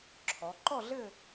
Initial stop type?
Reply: click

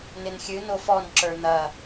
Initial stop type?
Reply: click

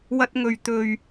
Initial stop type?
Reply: plain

